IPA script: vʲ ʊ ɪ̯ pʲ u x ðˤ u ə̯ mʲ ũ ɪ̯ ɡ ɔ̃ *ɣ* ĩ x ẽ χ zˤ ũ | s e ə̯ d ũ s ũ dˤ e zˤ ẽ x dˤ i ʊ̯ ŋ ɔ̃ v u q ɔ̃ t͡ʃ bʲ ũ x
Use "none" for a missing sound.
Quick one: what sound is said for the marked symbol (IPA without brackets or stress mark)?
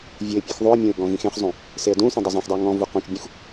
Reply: ɣ